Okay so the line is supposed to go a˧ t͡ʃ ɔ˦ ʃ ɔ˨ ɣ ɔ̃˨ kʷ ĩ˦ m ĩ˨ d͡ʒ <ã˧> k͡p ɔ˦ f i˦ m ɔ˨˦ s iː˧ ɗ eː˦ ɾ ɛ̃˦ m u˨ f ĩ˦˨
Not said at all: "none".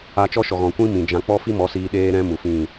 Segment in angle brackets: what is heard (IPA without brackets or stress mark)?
ã˧